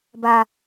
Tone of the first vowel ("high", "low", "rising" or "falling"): low